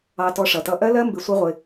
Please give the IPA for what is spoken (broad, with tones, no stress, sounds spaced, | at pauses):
ɑ˧ t ɔ˧ ʂ ʌ˨ t ʌ˧ ʔ ɜ˦ l ɜ˦ m b ɪ˧ sʷ ʌ˦ ʁʷ ɪ˧